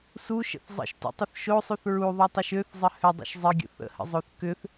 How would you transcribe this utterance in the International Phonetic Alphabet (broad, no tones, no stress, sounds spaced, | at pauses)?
s u ʃ ə̰ θ zˤ ə̰ ʃ t ṵ tˤ ə θ ʃ o sˤ u θ ɹ u ðˤ u tˤ ʏ ʃ ø θ zˤ ə h ʏ dˤ ṵ ʃ zˤ ɪ ɡʲ ə̰ θ ə̰ h ə̰ zˤ o θ k ʏ θ